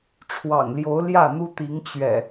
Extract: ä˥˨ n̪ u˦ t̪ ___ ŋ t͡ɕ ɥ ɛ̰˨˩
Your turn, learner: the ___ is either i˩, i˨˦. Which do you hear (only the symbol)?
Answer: i˨˦